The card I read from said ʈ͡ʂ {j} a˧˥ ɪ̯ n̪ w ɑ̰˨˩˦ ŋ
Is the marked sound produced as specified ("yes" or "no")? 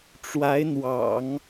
no